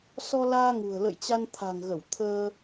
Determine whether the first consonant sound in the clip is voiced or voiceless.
voiceless